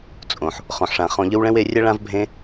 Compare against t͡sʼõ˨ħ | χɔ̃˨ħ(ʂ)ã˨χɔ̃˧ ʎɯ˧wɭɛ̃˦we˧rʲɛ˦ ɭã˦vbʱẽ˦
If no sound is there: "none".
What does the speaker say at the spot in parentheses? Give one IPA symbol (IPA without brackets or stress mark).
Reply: ʂ